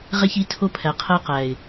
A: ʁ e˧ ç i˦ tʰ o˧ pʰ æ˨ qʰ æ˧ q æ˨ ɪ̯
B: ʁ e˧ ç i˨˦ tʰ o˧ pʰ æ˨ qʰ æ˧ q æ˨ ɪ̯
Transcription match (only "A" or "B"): B